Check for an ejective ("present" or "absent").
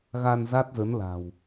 absent